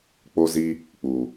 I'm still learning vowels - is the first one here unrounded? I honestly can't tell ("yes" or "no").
no